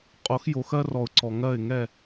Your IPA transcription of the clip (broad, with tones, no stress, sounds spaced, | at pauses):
qʼ o˨˦ x j o˨ x ɜ˦ r ɔ˨ ʊ̯ ǀ ɔ˨ ŋ ɜ˦˨ ɪ̯ ŋ ɛ˦˨